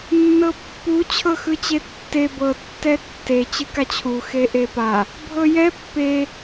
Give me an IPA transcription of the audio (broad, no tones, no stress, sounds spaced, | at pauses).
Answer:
nː ɤ pː u t͡ɕʰ ɤ x ɯ t͡ɕ e tː e b ɤ tː ɛ tː e t͡ɕ ɯ k a t͡ɕʰ u x e ʔ e p a | bʱ ɤ j ɛ pː e